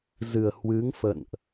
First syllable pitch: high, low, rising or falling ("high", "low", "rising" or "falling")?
low